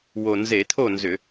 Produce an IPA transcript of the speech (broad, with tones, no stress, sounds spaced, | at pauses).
w o˨˩ n z e˧˩˧ t̪ʰ o˥˨ n z ʏ˧˩˧